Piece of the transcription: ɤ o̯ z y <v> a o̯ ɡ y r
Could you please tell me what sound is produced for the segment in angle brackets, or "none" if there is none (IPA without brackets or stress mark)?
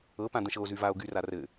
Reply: v